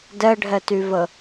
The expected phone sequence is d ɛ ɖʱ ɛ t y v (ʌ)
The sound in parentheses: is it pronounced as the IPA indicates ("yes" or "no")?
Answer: no